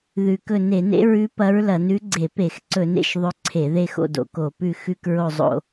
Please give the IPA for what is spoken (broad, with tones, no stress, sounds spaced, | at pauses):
ð ʉ˨˩ k ɵ˦˨ n e˧˩˧ n ḛ˧˥ ɹ ʉ˧˥ p ɐ˧˥ ɹ l ɐ˧˩˧ n ʉ˧˥ ɡ͡ǀ e˧˩˧ p e˧˩˧ x ǀ ɵ˧˩˧ n ḛ˦˨ ʃ ðˤ ɵ˧˥ ǀʰ e˧˩˧ ð e˦˨ x o̰˦˨ d o̰˨˩ k o˧˩˧ p ʉ˦˨ x ʉ˦˨ k ɹ o˦˨ zˤ o̰˦˨